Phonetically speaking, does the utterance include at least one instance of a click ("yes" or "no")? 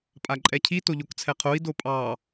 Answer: yes